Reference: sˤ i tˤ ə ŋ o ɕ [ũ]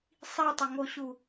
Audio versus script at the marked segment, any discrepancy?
yes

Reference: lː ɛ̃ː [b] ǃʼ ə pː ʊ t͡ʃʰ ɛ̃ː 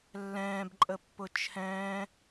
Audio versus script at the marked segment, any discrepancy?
no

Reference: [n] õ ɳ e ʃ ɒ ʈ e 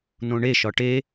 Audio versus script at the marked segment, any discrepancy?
no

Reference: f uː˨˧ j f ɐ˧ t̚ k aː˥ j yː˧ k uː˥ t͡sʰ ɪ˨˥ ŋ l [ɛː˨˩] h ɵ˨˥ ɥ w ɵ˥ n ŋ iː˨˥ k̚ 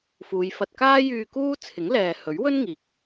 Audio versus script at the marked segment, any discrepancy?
yes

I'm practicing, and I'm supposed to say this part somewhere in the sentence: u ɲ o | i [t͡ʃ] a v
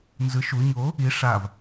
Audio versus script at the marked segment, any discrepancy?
yes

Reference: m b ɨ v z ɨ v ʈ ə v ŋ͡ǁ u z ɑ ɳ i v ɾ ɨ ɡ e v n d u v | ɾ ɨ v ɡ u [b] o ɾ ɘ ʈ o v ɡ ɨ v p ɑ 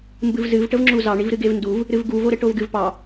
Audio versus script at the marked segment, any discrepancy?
yes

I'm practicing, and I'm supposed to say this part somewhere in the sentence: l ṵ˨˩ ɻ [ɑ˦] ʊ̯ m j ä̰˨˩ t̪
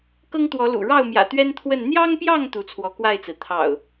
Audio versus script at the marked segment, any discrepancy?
yes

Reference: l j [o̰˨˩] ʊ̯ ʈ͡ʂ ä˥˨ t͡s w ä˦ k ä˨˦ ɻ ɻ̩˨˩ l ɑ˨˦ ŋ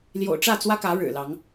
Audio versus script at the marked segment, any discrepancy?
no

